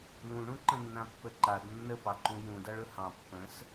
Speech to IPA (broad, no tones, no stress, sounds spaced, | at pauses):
l ũ ɳ ũ ǃ ə̃ nː ã pː ə ǃ a d nː ə p ɑ ǃ ũ j ũ d a ɭ ɵ h ɑ̃ pː ə̃ s